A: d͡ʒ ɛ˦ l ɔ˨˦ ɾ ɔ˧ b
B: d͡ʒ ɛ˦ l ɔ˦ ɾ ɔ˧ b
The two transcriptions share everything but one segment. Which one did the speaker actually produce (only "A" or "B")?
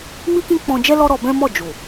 B